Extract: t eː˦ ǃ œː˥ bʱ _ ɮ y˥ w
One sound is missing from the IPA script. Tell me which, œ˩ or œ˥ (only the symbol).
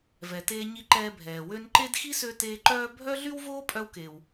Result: œ˥